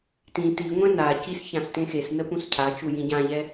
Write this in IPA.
t ĩ t i ŋʷ ẽ n a c i s ç ã s t ẽ x e s n ə p ũ s cʰ a t͡ʃ u j ĩ ɟ ã ʎ ɛ

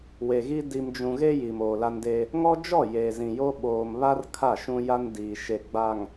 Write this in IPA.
w e˨ ɣ i˦ d i˨ m d͡ʒ ũ˨ ɣ e˦ j i˨ m oː˨ l a˦ n d e˦ | ŋ ɔ˦ d͡ʒ ɔ˦˨ j eː˨ z ĩ˨ j o˦ ɓ oː˨ m β a˦ r kʰ a˦˨ ʃ ũ˦ j a˦ n d iː˨ ʃ e˨ ɡ͡b a˨ ŋ

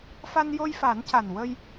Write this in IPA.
f a˧ n j o˧ j f a˨˩˦ n c a˨˩ n w ə˧ j

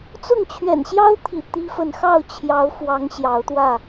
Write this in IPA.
t͡s ʊ˥˨ ŋ t͡ɕʰ ɥ ɛ̰˨˩ n ɕ j ɑ˦ ʊ̯ t̪ʰ ḭ˨˩ t̪ i˦ f ə˥˨ n x ɑ˥˨ ʊ̯ t͡ɕʰ j ɑ˨˦ ʊ̯ f w ɑ˨˦ ŋ ɕ j ɑ˨˦ ʊ̯ t̪ w ä˥˨

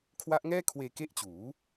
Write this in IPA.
kʰ w a˦˥ ʔ ŋ ɛː˥˩ kʰ w eː˧ k e˦˥ ʔ t͡ɕ uː˩˦

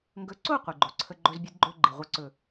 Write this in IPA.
ŋ ɡ ɵ˨˦ ǀ o˦˨ qʷ i˨ ɡ͡ǃ o˨ ǀʰ ə˦ ɡ͡ǃ ɵ˦ z bʲ ɨ˦ d ɡ͡ǃ ɵ˦ ɡ͡ǃ i˨ ʁʷ ɨ˦ ǀ ɵ˦˨

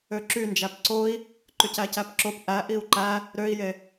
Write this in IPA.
ø ǁ y n d͡ʒ æ p ǀ o i̯ | ǃ y c æ c æ p ǁ o p ʔ æ ʔ i u̯ ǃ æ | ɾ ø i̯ j e

